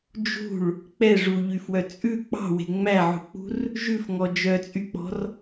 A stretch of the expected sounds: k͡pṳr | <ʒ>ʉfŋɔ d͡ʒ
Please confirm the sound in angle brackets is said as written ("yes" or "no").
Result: yes